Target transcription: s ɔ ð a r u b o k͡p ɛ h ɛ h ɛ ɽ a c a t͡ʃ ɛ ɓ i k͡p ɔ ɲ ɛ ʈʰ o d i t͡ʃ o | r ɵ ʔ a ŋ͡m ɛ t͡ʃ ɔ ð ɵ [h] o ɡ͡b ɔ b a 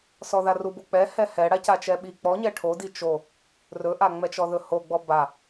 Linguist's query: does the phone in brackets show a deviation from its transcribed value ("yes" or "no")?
no